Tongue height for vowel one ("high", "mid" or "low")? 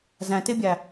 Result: low